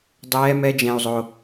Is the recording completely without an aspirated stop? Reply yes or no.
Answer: yes